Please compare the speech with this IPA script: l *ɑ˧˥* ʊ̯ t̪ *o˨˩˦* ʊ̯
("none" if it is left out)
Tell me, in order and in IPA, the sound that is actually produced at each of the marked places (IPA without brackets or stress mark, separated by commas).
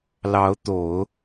ɑ˧˥, o˨˩˦